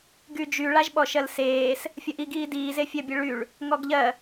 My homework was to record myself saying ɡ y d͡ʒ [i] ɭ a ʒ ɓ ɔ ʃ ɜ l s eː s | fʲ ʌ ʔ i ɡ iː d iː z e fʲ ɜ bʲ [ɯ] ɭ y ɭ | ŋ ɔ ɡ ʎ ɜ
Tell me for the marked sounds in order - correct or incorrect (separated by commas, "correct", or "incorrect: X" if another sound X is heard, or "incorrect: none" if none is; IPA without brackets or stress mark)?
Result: incorrect: y, correct